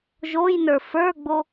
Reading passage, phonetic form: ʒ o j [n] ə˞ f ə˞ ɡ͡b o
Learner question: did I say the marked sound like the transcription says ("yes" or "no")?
yes